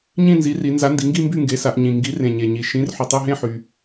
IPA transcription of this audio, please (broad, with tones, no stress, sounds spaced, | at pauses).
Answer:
ɲ ĩ˥˨ n z i˩˥ r i˩˧ n z a˩˥ n d i˩˧ ŋ ɡ i˥˨ m b y˥˨ ŋ ɡ e˩˥ s a˩˧ ʔ ɲ ĩ˩ ŋ ɡ i˩˥ r ẽ˩ ɲ e˩ ɲ i˩ ʃ ĩ˩˥ r ħ y˩ tˤ y˥˨ ɦ ẽ˥˨ ħ y˩